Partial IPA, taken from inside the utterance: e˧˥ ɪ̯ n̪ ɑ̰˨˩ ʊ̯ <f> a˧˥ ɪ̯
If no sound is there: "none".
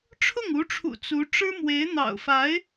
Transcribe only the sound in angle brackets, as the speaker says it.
f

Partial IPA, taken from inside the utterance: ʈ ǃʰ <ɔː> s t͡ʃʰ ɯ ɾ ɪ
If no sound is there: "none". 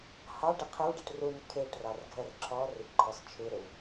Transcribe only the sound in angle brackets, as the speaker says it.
ɔ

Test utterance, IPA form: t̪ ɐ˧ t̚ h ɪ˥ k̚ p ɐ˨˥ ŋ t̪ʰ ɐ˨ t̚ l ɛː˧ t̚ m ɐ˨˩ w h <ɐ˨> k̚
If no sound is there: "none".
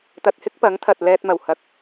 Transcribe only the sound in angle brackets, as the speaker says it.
ɐ˨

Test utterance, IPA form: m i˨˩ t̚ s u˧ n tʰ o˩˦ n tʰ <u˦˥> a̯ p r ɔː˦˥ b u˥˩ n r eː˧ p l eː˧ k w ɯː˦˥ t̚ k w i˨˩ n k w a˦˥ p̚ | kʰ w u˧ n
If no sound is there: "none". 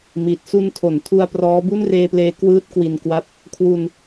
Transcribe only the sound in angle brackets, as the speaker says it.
u˧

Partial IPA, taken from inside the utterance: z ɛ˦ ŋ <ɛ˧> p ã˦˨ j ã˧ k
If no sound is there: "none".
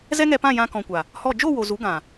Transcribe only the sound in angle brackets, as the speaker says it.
ɛ˧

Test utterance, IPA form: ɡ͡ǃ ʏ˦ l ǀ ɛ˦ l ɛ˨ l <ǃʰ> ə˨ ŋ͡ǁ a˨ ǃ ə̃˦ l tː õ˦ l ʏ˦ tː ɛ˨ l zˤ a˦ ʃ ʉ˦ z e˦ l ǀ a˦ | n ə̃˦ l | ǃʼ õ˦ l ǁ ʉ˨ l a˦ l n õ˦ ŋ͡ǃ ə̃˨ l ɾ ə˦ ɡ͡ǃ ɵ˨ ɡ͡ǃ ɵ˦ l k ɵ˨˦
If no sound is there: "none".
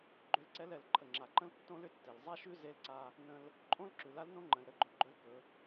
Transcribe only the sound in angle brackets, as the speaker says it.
ǃʰ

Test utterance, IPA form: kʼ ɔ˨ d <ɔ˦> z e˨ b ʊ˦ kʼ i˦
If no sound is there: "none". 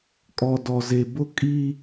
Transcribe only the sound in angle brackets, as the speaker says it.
ɔ˨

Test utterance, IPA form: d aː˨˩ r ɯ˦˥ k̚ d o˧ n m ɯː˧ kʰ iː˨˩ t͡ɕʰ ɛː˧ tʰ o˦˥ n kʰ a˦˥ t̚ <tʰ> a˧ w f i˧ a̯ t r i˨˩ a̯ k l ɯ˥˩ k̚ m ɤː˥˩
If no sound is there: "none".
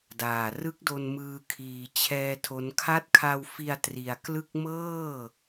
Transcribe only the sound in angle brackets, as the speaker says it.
kʰ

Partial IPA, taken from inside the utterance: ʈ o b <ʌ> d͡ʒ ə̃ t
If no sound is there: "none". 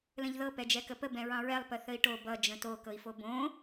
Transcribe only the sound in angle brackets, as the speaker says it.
ʌ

